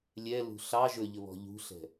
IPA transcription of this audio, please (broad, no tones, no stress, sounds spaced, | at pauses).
lʲ ɛ l ṳ ɬ ɑ ʒ ɵ ʎ ɵ β ɔ̤ ʎ ṳ ɬ ɛ̤